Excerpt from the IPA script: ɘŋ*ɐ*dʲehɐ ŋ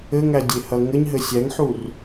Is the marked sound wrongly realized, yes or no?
yes